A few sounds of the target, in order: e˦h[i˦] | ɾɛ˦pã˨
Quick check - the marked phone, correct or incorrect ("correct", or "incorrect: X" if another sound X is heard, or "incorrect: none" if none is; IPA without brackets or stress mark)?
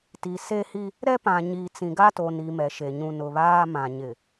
correct